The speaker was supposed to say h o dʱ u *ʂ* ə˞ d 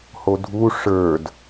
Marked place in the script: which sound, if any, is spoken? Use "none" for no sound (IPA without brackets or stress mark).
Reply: ʂ